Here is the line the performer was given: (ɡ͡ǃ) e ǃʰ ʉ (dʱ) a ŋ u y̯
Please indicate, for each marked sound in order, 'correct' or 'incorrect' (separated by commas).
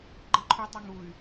correct, incorrect